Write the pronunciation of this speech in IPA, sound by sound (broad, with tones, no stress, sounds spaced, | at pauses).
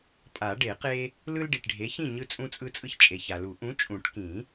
pʼ a˨˩˦ ɖ e˨˩˦ q e˦ | l ɯ˦ l ɖ i˨ ʈ ɖʱ e˨˥ ç ĩ˥˨ ɲ ɯ˦ t͡sʼ ũ˦ t͡sʼ ɯ˦ t͡sʼ ɯ˦ ç t͡ʃʼ e˨ ç a˨ l u˨˩˦ ʔ ũ˨˥ t͡ʃʼ ũ˨˩˦ ʈ k ĩ˨˩˦